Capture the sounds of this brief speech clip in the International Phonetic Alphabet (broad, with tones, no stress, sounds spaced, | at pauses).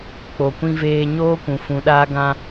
k͡p o˨ kʷ ĩ˧ v eː˧ ɲ oː˦ kʷ ũ˨ f ũ˨˦ ɗ aː˦ ɡ ã˦